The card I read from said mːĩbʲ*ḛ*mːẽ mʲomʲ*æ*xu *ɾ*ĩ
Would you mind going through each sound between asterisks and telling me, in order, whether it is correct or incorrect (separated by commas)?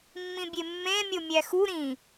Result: incorrect, correct, correct